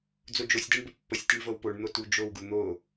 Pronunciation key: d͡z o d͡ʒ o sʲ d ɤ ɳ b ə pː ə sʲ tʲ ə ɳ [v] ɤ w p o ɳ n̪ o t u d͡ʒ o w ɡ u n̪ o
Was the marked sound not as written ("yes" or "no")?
no